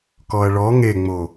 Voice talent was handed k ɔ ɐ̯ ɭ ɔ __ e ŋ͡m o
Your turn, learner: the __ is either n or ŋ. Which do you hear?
ŋ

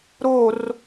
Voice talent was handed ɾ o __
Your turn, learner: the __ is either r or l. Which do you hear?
r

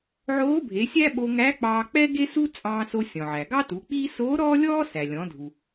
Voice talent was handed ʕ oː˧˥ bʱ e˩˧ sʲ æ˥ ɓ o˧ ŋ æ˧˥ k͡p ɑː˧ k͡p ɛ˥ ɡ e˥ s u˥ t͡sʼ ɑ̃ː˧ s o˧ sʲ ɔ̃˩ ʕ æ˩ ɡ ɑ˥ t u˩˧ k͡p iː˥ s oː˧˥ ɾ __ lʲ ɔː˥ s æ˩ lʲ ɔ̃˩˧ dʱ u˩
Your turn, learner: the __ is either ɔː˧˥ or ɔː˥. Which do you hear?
ɔː˥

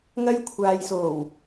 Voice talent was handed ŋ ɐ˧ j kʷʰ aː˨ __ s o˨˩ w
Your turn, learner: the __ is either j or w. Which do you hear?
j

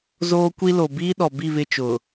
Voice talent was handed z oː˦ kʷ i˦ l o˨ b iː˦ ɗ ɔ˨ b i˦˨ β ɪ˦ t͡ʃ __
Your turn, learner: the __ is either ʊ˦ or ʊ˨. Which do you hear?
ʊ˨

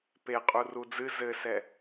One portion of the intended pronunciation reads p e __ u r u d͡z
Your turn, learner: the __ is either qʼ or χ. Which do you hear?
qʼ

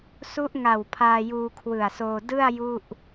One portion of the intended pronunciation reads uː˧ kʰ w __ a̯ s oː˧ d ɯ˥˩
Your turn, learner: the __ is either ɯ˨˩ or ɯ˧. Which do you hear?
ɯ˨˩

